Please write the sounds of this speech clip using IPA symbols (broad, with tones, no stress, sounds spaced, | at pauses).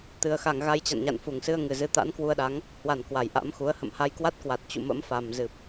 t̪ ɨ˨˩ ə̯ x a˧˩ ŋ ɣ a˧ j t͡ɕ a̰˧˨ n ɲ a̰˧˨ n f u˧˩ ŋ s ɨ˧ ə̯ ŋ ɨ˨˩ z ɨ˨˦ t̪ a̰˧˥ n k w u˧ ə̯ ɗ a˨˦ ŋ | h w a˧˩ n k w a˧˩ j ʔ a̰˧˥ m x u˨˦ ə̯ h ə̰˧˨ m h a˧ j k w a˦˥ t̚ k w a˨˩ t̚ t͡ɕ ṵ˧˨ m ə̰˧˥ m f a˨˩ m z ɨ˨˩ p̚